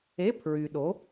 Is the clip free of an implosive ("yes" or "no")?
no